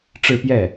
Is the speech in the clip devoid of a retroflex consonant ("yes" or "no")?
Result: no